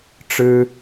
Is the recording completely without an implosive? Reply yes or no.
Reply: yes